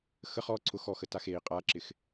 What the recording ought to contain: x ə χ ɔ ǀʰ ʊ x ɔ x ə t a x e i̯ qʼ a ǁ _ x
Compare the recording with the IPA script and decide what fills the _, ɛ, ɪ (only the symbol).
ɪ